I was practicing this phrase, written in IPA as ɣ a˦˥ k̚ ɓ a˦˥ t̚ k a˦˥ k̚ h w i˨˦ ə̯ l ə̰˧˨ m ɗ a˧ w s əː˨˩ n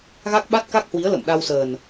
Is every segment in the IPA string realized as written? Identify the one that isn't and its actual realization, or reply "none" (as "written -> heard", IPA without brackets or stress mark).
none